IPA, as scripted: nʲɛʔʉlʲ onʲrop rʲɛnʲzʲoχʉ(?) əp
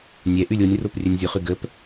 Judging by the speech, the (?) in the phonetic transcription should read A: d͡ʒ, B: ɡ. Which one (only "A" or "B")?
B